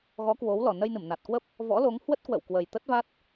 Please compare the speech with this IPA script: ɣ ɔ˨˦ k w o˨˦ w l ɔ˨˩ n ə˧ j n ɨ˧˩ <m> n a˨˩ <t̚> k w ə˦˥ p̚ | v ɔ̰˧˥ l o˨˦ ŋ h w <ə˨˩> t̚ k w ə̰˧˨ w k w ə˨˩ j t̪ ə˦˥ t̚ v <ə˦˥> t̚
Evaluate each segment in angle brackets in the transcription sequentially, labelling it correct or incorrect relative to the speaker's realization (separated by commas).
correct, correct, incorrect, incorrect